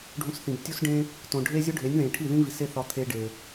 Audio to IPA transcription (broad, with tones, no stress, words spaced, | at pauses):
ɖʱũ˧sθĩ˨btʲu˦sɖẽ˦ | tõ˨ɖʱe˦ zʲo˦ɖʱe˨˦nʲðẽ˨ ʈʰi˦˨ ðĩ˦ vi˨se˦θɒ˧ t̪ʰe˦ɖe˨